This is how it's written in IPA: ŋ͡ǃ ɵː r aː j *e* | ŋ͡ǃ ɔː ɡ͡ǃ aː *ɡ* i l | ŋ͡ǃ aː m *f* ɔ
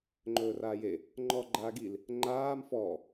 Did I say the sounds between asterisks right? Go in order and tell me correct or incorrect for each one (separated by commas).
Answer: correct, correct, correct